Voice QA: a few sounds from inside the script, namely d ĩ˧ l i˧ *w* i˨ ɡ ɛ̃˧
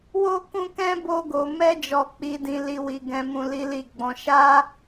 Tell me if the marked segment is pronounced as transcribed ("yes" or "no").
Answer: yes